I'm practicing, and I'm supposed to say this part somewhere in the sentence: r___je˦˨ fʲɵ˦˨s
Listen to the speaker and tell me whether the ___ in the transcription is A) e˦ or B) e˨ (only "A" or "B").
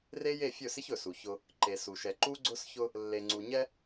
A